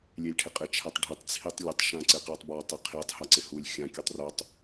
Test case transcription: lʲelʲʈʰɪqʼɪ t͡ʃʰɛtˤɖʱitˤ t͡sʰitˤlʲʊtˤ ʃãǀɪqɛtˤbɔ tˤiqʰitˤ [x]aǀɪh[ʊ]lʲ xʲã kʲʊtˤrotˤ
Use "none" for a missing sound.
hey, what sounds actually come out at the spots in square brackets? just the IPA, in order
h, u

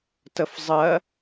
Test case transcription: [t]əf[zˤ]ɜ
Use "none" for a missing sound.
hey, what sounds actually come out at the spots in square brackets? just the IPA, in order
t, zˤ

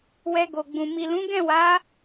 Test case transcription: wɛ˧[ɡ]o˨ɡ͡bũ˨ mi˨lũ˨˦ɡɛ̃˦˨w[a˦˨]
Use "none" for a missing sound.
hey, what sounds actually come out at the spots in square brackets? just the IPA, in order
ɡ, a˨˦

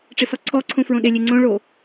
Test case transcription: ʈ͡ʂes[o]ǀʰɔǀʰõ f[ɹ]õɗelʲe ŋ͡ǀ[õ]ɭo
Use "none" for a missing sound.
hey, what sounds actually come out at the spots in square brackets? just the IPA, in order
ɔ, ɹ, õ

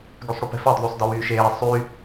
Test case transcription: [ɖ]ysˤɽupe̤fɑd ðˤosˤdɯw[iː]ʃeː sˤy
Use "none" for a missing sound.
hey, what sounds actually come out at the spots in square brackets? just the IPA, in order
ɡ, yː

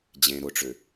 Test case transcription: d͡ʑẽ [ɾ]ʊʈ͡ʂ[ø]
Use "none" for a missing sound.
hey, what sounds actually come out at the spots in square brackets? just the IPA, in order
ɾ, ø

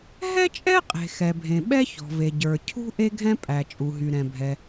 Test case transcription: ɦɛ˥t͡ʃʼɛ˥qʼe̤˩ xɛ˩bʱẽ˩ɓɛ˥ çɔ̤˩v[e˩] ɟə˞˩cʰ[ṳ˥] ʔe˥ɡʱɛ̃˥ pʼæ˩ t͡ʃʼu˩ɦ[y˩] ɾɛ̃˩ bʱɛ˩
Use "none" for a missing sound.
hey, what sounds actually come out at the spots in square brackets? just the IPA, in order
e˩, ṳ˥, y˩

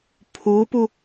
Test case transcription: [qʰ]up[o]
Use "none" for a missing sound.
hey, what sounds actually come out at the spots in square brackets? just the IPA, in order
pʰ, u

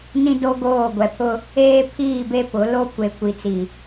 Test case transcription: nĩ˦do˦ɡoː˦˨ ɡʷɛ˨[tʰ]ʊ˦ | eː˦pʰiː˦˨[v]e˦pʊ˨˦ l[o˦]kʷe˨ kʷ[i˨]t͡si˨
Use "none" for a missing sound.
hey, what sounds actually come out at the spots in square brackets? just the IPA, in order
pʰ, b, o˦, i˨

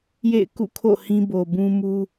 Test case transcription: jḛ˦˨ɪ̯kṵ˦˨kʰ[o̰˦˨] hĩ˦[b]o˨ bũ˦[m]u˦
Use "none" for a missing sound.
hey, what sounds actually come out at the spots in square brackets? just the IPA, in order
o̰˦˨, b, m

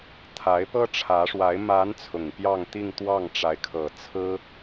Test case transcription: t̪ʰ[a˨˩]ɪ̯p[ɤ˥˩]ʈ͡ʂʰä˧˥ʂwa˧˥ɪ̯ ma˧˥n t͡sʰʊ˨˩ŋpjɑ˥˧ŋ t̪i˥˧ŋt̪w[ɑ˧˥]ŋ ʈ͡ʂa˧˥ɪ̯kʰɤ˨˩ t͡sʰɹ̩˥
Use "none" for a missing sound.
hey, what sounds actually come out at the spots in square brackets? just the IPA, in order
a˧˥, ɤ˥, ɑ˥˩

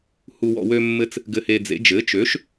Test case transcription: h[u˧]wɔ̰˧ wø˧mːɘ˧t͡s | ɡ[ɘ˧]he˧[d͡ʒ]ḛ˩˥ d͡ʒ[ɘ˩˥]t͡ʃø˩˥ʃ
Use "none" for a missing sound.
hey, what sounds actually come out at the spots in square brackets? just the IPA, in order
u˧, ɘ˧, d͡z, ɘ˩˥

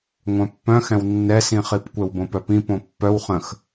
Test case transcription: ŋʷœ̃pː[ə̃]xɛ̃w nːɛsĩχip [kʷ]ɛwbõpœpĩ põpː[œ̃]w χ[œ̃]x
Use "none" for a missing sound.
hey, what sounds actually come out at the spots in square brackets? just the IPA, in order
œ̃, kʷ, œ, ə̃

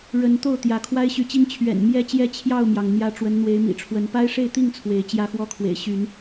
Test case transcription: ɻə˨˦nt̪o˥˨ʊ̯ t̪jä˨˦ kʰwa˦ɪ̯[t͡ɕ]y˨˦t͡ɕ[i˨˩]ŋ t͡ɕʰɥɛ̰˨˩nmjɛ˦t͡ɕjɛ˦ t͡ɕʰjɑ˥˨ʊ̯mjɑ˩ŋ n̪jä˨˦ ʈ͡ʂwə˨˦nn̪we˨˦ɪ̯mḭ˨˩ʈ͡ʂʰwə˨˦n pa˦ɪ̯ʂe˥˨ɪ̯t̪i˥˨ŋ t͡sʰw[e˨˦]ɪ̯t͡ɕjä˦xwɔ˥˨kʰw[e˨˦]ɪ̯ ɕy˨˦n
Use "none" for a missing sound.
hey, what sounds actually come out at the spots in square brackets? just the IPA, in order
ɕ, i˦, e˨˦, ḛ˨˩

